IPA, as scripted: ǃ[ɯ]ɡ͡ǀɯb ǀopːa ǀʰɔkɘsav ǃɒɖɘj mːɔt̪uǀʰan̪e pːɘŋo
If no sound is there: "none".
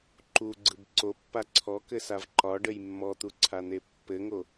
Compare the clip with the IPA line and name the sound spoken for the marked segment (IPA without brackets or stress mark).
u